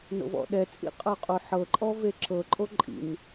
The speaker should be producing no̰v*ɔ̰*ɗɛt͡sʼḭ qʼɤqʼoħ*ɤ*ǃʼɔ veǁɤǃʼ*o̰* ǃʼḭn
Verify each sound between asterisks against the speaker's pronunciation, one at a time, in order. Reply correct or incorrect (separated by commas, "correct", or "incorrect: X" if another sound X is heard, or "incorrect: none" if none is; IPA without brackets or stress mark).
correct, correct, incorrect: o